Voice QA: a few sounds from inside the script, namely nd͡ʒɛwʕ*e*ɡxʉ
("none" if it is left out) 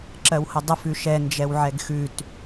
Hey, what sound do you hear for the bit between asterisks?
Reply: ɛ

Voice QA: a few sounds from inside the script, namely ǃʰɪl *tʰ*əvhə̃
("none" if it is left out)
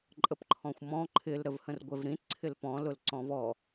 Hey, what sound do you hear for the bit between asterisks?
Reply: ɾ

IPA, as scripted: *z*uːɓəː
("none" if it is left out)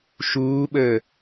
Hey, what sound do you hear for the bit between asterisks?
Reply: ʃ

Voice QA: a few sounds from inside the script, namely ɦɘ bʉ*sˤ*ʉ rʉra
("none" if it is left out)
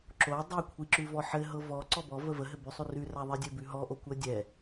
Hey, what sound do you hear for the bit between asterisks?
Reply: sˤ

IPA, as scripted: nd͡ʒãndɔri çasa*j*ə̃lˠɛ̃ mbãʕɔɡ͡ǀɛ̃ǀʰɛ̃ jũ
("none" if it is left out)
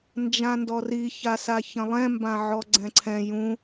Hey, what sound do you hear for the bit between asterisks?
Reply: ç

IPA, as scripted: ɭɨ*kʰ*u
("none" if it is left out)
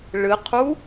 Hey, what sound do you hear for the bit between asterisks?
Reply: qʰ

